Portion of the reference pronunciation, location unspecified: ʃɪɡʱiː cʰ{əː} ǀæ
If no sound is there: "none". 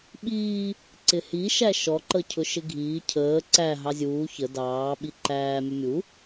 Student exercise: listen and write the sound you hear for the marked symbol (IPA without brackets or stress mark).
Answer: əː